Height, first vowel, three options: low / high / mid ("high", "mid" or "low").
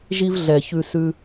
high